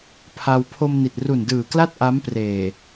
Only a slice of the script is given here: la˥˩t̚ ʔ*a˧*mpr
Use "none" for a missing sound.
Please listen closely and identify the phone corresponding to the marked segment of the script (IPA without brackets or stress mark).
a˦˥